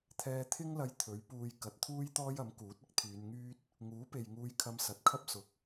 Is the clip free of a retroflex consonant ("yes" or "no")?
yes